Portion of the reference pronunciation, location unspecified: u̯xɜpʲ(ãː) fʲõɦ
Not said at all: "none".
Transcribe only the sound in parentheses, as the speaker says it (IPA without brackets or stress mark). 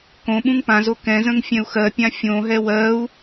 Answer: ã